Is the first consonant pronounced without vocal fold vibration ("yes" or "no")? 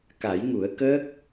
yes